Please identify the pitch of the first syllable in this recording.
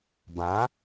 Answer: rising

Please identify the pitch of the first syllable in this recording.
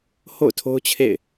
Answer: falling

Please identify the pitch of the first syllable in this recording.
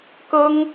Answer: high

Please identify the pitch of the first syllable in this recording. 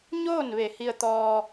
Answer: falling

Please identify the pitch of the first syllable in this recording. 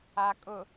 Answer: low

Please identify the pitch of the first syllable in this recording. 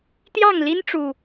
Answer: falling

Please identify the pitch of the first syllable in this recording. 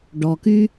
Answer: low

